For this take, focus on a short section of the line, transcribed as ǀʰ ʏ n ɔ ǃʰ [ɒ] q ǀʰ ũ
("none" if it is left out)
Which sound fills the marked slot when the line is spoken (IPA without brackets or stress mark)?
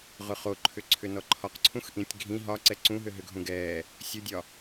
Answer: ɒ